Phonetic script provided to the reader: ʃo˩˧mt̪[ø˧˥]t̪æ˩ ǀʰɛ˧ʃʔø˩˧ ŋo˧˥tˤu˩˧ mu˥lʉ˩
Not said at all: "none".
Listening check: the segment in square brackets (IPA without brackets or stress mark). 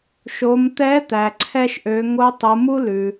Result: ɛ˧˥